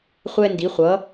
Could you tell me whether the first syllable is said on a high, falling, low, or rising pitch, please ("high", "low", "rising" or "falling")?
high